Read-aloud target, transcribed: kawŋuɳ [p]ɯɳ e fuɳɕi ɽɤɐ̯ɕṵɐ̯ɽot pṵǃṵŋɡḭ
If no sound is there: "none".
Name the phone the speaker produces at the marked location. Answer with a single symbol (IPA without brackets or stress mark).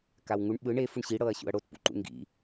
ɓ